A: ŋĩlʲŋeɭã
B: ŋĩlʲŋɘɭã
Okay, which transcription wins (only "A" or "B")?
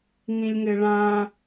B